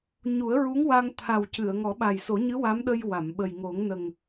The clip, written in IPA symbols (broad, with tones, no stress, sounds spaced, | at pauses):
ɲ u˨˩˦ ə̯ ɹ u˧˥ ŋ w a˧ ŋ t̪ʰ a˨˩ w c ɨ˨˩˨ ə̯ ŋ ɔ˨˩˦ ɓ a˨˩ j s o˨˩˦ ɲ ɨ˧˥ w a˧˥ m ɗ ə˧ j w a˨˩˨ m ɓ ə˨˩ j ŋ o˨˩˦ ŋ n ə˨˩ ŋ